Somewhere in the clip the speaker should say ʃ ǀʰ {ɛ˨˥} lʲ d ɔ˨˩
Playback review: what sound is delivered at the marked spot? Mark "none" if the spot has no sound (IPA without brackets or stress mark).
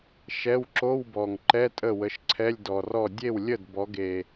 ɛ˧˥˧